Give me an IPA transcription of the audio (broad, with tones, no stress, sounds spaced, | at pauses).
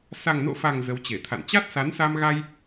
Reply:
s a˨˩ ŋ n o̰˧˨ f a˨˩ ŋ z ə˨˦ w t͡ɕ e˧˩ t̪ʰ a̰˧˨ n t͡ɕ a˦˥ t̚ s a˨˦ n s a˧ m ɣ a˧ j